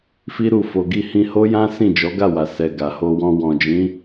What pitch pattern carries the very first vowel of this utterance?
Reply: high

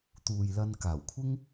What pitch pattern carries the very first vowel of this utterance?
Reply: low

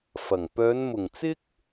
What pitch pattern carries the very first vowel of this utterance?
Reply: low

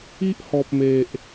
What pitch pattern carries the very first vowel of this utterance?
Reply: high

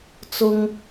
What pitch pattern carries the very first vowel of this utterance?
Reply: high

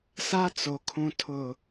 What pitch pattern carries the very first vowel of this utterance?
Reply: high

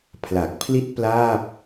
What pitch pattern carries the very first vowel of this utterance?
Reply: low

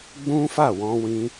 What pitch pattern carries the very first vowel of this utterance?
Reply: high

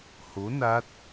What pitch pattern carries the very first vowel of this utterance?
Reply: rising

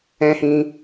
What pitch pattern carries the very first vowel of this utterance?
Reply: high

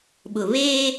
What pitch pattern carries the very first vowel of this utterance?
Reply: low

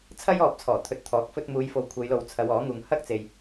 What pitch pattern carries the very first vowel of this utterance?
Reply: high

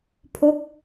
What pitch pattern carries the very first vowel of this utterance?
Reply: falling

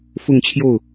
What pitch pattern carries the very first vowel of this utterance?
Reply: falling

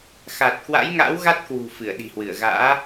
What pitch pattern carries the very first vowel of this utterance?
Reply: low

